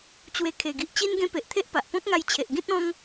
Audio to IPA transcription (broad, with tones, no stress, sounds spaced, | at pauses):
t͡ɕ w e˧ kʰ e˨˩ ɡ i˨ ʔ t͡ɕ i˦ n ɡ ẽ˦ p e˨ ʔ t̪ʰ e˦ ʔ p a˨ ʔ p ɔ̃˦ k̚ ŋ a˧ j t͡ɕʰ e˨ ʔ ɡ ĩ˦ t̚ ɔ̃˦ ŋ